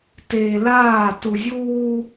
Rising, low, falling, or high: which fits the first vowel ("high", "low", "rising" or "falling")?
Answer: low